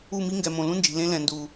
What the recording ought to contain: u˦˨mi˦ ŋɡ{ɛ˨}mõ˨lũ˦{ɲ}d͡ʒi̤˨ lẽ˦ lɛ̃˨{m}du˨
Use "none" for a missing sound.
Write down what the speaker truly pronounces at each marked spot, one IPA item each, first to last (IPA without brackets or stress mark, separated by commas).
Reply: ɛ˨, n, n